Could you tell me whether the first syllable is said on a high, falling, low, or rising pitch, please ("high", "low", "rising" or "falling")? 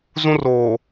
high